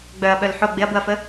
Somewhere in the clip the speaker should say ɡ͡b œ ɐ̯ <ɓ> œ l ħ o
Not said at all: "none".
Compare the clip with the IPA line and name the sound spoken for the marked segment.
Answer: ɓ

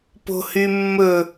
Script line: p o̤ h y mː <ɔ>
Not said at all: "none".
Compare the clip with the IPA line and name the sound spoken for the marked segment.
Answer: ɵ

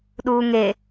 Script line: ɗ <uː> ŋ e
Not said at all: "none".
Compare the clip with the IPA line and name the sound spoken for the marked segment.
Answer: uː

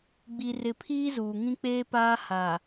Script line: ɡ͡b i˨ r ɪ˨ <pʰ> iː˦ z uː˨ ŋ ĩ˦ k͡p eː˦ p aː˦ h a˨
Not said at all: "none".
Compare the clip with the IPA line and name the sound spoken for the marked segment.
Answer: pʰ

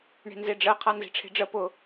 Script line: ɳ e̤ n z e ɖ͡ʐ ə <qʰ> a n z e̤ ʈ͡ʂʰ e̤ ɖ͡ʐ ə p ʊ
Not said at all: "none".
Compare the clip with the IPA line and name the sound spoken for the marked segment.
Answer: qʰ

